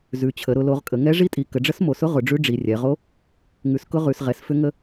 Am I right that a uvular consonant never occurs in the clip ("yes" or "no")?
no